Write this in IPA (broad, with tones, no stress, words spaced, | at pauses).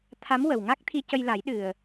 t̪ʰa˧˥mwə˨˩wŋa˦˥k̚t̪ʰi˧ cə˧jla˨˩˦j ɗɨ˨˩ə̯